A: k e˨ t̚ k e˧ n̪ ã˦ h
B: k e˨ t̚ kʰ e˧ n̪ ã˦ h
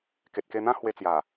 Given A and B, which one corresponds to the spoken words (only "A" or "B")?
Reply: A